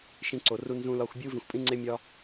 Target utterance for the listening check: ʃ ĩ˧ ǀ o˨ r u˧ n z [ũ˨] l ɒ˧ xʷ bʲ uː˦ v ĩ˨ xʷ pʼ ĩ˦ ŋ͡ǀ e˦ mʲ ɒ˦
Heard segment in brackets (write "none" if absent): ũ˧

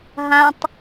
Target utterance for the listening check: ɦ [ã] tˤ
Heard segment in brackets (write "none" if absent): ã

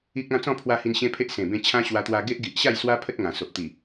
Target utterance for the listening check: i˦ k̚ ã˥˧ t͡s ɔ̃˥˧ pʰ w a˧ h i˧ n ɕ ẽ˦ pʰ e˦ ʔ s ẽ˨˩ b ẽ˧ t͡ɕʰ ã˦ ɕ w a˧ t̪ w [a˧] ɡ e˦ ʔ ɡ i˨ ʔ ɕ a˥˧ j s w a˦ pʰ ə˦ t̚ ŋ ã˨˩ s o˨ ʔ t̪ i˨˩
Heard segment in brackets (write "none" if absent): a˧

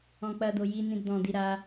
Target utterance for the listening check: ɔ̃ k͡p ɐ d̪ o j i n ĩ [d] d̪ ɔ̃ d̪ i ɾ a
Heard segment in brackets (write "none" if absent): d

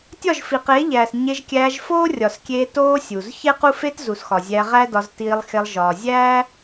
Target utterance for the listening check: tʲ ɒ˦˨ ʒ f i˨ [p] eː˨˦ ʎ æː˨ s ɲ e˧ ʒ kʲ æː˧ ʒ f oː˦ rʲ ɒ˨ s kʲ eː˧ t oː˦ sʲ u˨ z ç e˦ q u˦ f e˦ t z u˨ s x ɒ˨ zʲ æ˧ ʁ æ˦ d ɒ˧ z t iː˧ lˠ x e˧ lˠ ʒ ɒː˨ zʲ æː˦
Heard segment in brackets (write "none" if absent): q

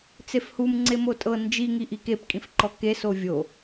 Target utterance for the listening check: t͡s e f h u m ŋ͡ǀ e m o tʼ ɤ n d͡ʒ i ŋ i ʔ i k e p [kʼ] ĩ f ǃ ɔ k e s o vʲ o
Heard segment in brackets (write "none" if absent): kʼ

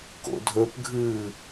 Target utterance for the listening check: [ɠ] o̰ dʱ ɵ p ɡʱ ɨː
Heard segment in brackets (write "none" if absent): k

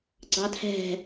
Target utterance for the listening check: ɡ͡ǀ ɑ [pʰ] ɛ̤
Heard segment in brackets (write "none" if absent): tʰ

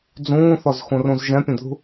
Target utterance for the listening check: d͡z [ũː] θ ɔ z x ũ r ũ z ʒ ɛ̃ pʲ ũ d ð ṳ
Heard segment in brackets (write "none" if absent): ũː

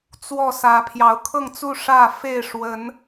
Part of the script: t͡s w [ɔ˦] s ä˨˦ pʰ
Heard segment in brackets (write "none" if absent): ɔ˥˨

